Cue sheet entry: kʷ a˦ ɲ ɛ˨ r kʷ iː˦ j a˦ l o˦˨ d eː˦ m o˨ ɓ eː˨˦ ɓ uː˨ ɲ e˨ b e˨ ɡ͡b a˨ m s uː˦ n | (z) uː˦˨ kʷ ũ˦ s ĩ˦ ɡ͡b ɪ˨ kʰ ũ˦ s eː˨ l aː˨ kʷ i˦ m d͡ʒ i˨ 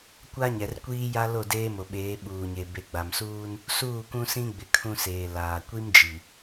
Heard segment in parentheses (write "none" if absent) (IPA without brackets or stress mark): s